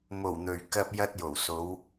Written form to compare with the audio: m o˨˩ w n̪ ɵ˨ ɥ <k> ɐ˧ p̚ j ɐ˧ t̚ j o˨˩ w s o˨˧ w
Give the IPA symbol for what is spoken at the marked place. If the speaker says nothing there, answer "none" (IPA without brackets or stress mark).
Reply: k